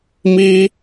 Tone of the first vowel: high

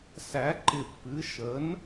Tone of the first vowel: rising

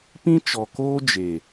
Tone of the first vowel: high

